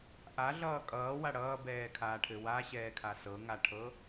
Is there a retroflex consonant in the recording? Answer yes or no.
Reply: yes